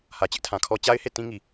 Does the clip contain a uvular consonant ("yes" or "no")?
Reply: no